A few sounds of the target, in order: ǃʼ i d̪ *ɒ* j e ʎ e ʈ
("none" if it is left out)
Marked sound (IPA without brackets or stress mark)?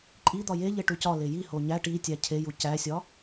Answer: ɒ